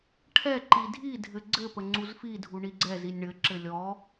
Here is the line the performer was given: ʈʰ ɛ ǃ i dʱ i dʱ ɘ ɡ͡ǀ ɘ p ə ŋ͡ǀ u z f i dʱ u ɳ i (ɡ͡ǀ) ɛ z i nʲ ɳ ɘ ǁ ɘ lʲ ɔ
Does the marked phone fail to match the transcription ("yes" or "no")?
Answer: no